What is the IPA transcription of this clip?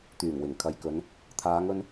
t̪ yː˨˩ ŋ w ɪ˨˩ ŋ kʰ ɐ˨ j k ɵ˨˧ n | t̪ʰ aː˨˧ ŋ ɵ˧ n

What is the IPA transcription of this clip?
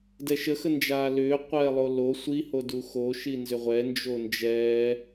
d ɛ ʃ ə x ə n d͡ʒ aː l ʏː qʷ ɛː lˠ o l o sʷ i h o d u x o ʃ i n z ʏ ʁʷ ɛ n d͡ʒ o n d͡ʒ ɛː

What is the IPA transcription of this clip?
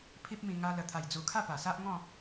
pʰ i˦ p̚ m ĩ˧ ŋ a˧ l ə˨˩ t̪ʰ a˨˩ j d͡z u˨˩ kʰ a˥˧ p a˨˩ s a˦ ʔ ŋ ɔ̃˥˧

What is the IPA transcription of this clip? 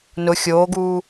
n ʊ xʲ oː ɡ uː

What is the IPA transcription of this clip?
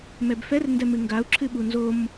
m ɛ b f ɛ r n d ɛ m ɨ ŋ ɡ a u̯ ǁʰ ɨ ɓ u n z o m

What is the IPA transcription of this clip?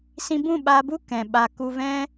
s ĩ˧ b ũ˦˨ ɓ a˧ b u˦ k ɛ̃˨ ɓ a˧ k u˧ v ɛ̃˦

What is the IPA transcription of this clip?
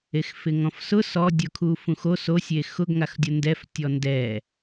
e x f ɪ ŋ ɔ̃ f s ʊ s ɔ dʲ ʊ kʰ u f ũ x o s o sʲ e x ʊ ɡ ŋ a x dʲ ʊ n d ɛ f tʲ ɔ n d ɛ

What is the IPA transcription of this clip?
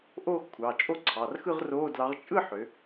ʔ oː˥˧ x kʷʰ ɑ˩˧˩ t͡ʃʼ o˥˧ ǀʰ ɑ˩˧˩ r x ɯ˥˧ ʁ r oː˧˥˧ d l ɑ˨˥ ʁ t͡ʃʼ ɯ˥˧ ħ ø˩˧

